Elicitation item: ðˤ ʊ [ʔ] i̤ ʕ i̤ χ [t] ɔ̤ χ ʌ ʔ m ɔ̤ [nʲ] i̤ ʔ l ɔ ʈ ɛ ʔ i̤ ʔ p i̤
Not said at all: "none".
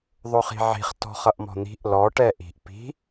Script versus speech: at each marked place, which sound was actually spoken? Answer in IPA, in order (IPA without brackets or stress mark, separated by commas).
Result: χ, t, n̪